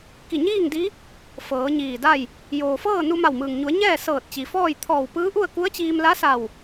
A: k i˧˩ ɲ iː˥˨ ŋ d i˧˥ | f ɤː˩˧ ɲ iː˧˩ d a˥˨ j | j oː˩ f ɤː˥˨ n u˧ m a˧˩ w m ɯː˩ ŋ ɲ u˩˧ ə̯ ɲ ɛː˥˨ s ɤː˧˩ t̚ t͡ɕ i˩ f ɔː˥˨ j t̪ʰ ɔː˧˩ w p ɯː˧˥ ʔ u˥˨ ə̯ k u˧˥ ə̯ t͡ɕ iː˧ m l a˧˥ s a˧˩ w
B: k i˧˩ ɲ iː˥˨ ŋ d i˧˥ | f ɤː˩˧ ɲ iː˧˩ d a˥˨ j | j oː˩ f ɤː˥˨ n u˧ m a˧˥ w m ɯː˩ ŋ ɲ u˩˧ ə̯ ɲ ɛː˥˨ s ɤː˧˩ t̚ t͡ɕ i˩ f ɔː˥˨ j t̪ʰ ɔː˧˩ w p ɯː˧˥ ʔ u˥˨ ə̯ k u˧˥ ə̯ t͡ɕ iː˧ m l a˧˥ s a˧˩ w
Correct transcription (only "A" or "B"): A